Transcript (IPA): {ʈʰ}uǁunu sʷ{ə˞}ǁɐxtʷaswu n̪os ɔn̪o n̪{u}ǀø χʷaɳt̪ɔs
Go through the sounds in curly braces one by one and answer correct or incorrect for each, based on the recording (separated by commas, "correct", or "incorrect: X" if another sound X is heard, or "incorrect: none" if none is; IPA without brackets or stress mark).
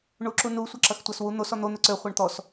incorrect: ɳ, incorrect: ɐ, incorrect: ø